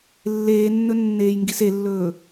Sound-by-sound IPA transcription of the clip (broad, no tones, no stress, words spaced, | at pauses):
lːeːnːɵ nːeːjŋɡiselːɵː